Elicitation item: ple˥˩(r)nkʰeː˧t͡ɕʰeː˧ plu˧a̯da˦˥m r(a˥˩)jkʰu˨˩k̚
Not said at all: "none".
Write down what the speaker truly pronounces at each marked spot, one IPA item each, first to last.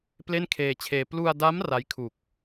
none, a˦˥

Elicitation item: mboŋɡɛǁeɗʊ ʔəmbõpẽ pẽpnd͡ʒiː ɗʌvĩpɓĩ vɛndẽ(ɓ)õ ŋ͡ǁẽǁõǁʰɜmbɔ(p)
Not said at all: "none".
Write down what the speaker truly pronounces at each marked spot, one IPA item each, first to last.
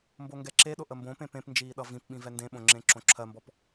ɓ, p

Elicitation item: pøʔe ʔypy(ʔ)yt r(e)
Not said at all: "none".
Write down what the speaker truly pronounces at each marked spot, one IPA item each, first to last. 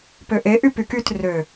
k, ø

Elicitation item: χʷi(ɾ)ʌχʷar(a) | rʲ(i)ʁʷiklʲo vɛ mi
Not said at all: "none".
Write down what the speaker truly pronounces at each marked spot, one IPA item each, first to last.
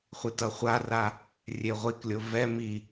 t, a, e

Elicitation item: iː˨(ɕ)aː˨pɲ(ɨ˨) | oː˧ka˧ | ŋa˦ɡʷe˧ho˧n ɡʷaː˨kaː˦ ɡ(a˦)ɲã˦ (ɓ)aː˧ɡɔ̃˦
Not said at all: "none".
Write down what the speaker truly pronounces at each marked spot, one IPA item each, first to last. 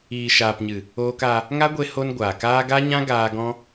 ʃ, ɨ˨, a˦, ɡ

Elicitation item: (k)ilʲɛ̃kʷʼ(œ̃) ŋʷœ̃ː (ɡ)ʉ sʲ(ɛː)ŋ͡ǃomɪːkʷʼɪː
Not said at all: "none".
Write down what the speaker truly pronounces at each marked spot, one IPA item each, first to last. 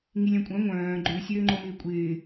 ŋ, œ̃, ɡ͡ǃ, øː

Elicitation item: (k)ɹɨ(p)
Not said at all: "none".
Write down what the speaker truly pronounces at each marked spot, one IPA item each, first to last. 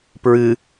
p, none

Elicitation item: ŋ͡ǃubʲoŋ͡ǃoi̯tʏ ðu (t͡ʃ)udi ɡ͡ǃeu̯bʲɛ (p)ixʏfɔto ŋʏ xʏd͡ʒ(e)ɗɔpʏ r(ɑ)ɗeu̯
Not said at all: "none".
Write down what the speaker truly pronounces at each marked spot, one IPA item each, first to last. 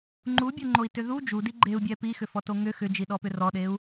d͡ʒ, p, i, ɔ

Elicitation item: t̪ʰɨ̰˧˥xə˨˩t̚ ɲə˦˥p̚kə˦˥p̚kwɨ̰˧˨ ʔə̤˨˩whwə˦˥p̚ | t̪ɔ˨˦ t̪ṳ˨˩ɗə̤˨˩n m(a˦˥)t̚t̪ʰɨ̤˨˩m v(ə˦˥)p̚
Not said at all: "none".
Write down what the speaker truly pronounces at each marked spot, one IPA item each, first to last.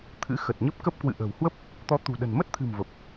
ə˦˥, ə˨˩

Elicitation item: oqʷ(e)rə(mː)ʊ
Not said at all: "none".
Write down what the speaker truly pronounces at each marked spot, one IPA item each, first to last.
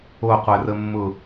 ɛ, mː

